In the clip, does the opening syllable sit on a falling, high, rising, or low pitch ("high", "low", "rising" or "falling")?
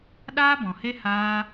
high